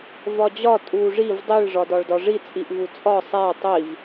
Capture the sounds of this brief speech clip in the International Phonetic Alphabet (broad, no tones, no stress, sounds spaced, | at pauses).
v ɒ d͡ʑ ɒ tʼ u ʐ i v dˤ i ɭ ʐ ɒ d ɒ ɭ d ɒ ʐ i t͡sʼ i ʔ v u t͡sʼ ɒ sˤ æ tˤ i v